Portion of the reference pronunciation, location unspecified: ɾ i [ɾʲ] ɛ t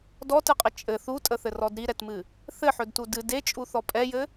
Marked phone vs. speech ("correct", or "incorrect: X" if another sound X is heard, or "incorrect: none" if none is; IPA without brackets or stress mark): incorrect: ɾ